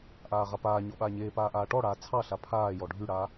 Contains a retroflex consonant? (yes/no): yes